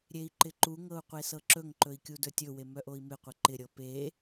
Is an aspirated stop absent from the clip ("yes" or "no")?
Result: yes